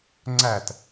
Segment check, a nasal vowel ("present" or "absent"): absent